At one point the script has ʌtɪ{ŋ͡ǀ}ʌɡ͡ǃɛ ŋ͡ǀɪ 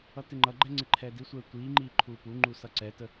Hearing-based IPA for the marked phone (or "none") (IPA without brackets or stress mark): ŋ͡ǃ